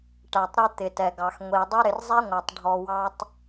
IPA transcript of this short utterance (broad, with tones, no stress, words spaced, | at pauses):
ʈæ˨tˤɾɪ˧ t̪ɪ˨tɛ˨ɡɑ˨x ŋʷi˨dˤʊ˦ ɾɪ˨rzˤɛ˦ŋʷæ˨tˤ ɖʱɔ˧wɑ˦tˤ